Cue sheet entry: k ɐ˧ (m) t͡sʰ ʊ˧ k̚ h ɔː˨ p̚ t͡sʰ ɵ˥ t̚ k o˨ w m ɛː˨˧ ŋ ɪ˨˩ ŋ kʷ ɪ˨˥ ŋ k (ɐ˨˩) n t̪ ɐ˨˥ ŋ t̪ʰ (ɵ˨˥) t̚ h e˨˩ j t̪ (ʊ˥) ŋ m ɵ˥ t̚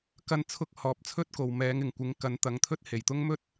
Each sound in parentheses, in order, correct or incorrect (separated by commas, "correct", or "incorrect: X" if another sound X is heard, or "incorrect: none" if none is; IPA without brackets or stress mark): incorrect: n, incorrect: ɐ˨˥, incorrect: ɵ˥, correct